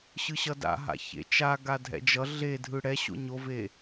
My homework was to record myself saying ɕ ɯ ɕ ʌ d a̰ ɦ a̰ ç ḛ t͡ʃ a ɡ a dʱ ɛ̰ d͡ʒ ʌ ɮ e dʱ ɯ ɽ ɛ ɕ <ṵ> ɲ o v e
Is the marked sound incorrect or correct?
incorrect